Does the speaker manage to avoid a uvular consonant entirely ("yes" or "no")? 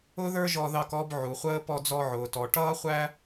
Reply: no